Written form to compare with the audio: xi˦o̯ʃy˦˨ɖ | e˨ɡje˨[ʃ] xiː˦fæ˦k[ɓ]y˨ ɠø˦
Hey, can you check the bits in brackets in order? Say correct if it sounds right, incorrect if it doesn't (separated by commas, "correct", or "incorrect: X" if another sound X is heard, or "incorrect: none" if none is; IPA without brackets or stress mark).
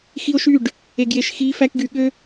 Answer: correct, incorrect: ɡ